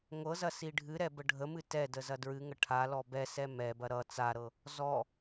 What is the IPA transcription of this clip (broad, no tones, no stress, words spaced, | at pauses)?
ŋʷɤzɐ siɖʱɨɾɛ bəɖʱəmɨ tɛ dəzɐdɹɨŋə ʈʰalɔ bɛ sɛmɛbɐ ɾʌ t͡saɾɤ | zɔ